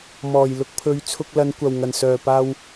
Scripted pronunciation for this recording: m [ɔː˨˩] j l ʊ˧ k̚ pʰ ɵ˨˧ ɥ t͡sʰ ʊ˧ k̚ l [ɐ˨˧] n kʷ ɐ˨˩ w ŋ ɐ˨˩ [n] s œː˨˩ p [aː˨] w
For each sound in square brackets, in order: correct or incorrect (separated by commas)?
correct, correct, correct, incorrect